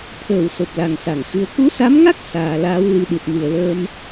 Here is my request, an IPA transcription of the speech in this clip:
t̪ʰ əː˧˩ w s o˨˩ p̚ l a˨˩ ŋ s a˧˩ ŋ x ɨ˨˦ ə̯ k u˨˦ s a˨˦ m ŋ a˦˥ k̚ s aː˨˩ l aː˨˦ w l i˨˦ ɗ i˨˩ t̚ m ɨ˨˩ ə̯ l əː˧ m

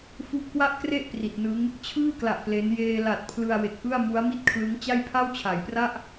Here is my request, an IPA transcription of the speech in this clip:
f u˦˥ ʔ k w a˥˩ ʔ k r e˥˩ ʔ p r i˨˩ t̚ n ɯ˦˥ ŋ | t͡ɕʰ ɯː˥˩ k l a˨˩ ʔ p l e˦˥ n j eː˧ l a˨˩ t̚ pʰ l ɯ˧ a̯ w e˨˩ k̚ ʔ ɯ˥˩ a̯ m u˦˥ a̯ m i˥˩ t̚ kʰ l ɯ˦˥ ŋ t͡ɕ a˥˩ j pʰ a˥˩ w t͡ɕʰ a˩˦ j p r a˥˩ ʔ

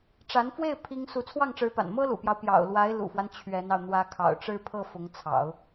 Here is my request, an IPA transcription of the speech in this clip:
ʈ͡ʂ a˧˥ n f w e˥˩ ɪ̯ pʰ i˥ ŋ s u˧˥ t͡sʰ w ɑ˥˩ ŋ ʈ͡ʂ ɻ̩˧˥ p a̰˨˩ n m ɤ˥ l ṵ˨˩ p j ɑ˦ ʊ̯ p j ɑ̰˨˩ ʊ̯ l w a˧˥ ɪ̯ l ṵ˨˩ f w a˦ n t͡ɕʰ ɥ ɛ˧˥ n ɑ˧ ʊ̯ n̪ w ä˧˥ kʰ ɑ̰˨˩ ʊ̯ ʈ͡ʂ ɻ̩˥˧ pʰ ɤ˥˩ f ʊ˧˥ ŋ t͡sʰ ɑ̰˨˩˦ ʊ̯

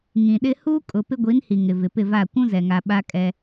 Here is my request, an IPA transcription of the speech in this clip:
ŋ ĩ˨ ɗ ɪ˦ h uː˦ kʼ ʊ˨ p ɪ˦ ɡʷ i˨˦ n h i˨ ŋ ɪ˨ v ɪ˨ p ɪ˦˨ v a˦˨ kʷ ũ˦ z ɛ˨ ŋ a˨ ɓ a˦ kʼ ɛ˦

